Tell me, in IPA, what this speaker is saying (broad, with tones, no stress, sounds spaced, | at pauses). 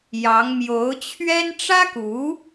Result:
j ɑ˧˥ ŋ m j o˧˥ ʊ̯ t͡ɕʰ ɥ ɛ˥ n ʈ͡ʂ ä˥ k u˧˥